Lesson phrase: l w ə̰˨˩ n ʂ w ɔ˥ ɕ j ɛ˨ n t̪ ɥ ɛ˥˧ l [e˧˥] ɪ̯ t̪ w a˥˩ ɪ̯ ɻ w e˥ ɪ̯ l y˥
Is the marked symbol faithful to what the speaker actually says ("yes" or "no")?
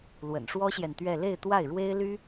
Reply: no